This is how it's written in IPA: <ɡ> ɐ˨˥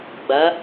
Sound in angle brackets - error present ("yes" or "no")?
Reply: yes